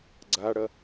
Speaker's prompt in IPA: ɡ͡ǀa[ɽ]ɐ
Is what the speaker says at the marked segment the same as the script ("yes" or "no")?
yes